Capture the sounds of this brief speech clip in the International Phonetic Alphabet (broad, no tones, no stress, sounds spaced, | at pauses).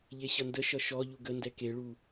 ʎ e ɕ ʌ n d ə ʃ ʌ ʃ ɔ ʎ u ɡ ə n d ɛ k e ɭ u